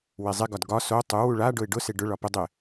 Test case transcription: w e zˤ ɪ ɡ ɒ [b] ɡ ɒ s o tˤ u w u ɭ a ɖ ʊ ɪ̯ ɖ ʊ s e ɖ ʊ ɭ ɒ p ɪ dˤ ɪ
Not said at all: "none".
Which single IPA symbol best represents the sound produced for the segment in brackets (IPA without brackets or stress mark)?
d